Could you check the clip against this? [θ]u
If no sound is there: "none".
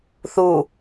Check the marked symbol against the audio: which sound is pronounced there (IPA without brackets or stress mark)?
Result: θ